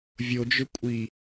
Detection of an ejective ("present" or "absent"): present